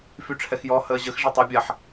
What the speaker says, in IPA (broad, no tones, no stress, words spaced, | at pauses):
fyʈ͡ʂʰɛxjɔ həːʑəx ʐɛtˤa bʲaħ